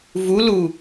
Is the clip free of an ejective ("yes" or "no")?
yes